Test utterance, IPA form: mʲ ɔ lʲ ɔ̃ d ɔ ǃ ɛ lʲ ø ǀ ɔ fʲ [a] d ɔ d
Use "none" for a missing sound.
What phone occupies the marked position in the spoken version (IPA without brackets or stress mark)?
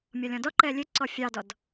ɑ